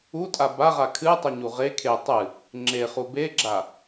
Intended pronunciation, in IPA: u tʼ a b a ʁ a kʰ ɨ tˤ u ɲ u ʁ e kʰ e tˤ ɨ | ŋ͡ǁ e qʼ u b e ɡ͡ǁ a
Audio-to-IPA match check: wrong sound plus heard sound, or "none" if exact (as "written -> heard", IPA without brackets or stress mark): qʼ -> χ